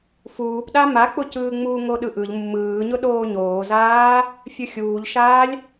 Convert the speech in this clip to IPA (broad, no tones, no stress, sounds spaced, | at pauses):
f uː p ɗ a m a k͡p ʊ c ɯː ŋ͡m uː ŋ o ɗ ɯ ʔ ɯ ʎ mː ɯː ɲ ʊ ɗ oː ɲ oː z aː | fʲ ɯ xʲ uː ʎ ʃ aː lʲ